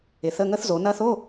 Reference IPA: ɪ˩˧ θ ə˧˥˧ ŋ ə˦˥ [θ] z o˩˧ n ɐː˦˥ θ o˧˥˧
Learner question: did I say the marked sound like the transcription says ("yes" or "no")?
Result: yes